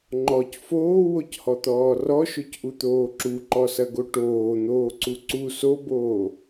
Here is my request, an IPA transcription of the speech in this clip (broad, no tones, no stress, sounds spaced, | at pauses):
ŋ͡ǃ ɔ c f oː w o c h ɔ t̪ ɔː r ɔ ʃ o c ʔ u t̪ oː ǁ u ǃ ɔ s ɐ ɡ o ʈ oː n̪ oː ǀ u ǀ u s o b oː